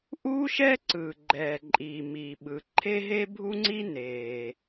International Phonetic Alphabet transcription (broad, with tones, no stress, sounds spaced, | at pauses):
ʔ uː˥ ʃ ɛ˥ ǀ ɯː˩ ɡ͡ǃ ɛː˩ ǃʼ iː˩ m iː˩ ɓ ɯ˩ ǃʰ e˥ ɦ e˥ bʱ u˥ ŋ͡ǀ i˥ n eː˩